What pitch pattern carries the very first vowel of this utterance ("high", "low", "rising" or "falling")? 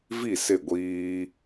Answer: falling